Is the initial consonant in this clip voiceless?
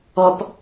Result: yes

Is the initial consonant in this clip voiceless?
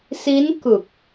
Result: yes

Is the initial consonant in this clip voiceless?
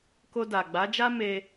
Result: yes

